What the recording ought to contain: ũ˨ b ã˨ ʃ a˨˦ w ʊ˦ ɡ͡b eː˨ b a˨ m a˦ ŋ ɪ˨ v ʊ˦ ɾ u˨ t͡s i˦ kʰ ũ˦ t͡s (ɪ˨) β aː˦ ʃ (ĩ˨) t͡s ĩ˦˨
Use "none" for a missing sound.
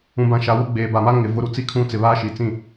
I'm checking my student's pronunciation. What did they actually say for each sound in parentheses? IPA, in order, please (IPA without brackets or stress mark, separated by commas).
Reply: ɪ˨, i˨